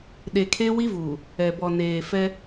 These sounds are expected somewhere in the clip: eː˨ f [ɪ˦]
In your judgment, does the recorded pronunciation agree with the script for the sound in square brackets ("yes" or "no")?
no